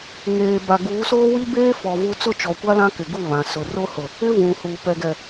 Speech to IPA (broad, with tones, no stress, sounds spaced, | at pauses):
ŋ eː˨ b a˨ ɡ uː˨˦ s oː˦ w i˦ b eː˦ f ɔ˨ v u˦ t͡s ʊ˦˨ t͡ʃ ɔ˨ kʷ a˦ l ã˦ k ɪ˨ ɡ u˦˨ β ã˨ s ʊ˨ r o˦ h ʊ˨ | ɪ˦ v ũ˨ h u˨ p ɛ˨ ɡ ɛ˨